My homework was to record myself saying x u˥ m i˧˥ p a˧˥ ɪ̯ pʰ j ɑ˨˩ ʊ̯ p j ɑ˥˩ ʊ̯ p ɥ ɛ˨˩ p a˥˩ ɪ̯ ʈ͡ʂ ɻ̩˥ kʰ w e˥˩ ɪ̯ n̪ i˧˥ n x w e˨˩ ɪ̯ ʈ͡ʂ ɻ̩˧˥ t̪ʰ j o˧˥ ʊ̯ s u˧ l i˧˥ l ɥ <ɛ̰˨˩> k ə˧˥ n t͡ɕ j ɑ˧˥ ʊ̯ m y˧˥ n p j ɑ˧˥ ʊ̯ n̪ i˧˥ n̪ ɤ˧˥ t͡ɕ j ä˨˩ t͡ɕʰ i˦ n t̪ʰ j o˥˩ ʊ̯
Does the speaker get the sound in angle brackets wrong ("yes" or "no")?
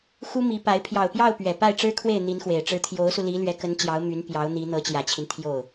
yes